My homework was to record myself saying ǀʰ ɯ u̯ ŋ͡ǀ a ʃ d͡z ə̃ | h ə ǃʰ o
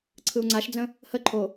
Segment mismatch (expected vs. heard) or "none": none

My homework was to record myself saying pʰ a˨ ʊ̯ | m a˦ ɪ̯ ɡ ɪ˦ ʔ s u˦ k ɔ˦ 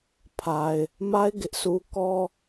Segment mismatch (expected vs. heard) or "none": ʊ̯ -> ɪ̯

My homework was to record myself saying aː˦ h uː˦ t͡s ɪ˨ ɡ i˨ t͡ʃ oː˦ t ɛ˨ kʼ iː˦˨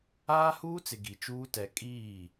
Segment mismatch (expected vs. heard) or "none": oː˦ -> uː˦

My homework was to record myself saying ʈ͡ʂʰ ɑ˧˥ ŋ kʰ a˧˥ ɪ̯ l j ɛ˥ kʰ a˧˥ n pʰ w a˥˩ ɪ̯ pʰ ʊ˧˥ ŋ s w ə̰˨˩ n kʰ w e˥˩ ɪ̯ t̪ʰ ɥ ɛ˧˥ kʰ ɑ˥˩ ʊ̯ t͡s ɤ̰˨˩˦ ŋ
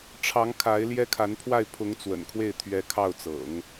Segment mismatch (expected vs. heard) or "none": s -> t͡s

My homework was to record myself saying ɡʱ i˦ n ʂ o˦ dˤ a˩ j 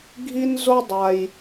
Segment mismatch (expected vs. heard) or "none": ʂ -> z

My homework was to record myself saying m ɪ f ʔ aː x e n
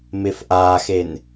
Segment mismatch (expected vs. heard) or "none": none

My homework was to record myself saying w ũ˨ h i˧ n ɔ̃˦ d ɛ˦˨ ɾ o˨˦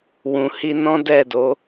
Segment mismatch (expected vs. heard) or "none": ɾ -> d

